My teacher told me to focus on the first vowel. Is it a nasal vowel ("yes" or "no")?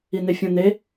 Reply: no